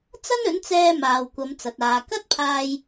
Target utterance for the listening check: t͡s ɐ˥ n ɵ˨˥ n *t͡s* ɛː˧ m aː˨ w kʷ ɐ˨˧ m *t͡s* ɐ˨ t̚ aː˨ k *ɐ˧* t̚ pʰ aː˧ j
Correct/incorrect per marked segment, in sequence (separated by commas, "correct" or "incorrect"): correct, correct, incorrect